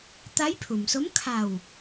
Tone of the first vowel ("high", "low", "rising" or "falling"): rising